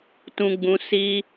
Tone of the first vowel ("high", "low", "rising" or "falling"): high